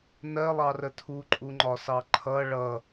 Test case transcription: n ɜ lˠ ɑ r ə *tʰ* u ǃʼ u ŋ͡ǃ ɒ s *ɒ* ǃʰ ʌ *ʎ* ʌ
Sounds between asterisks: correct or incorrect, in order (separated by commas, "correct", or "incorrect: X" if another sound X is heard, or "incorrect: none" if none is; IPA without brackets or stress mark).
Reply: correct, incorrect: ɑ, incorrect: ɭ